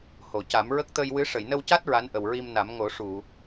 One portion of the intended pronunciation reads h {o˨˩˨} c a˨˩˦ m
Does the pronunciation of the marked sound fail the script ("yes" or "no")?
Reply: no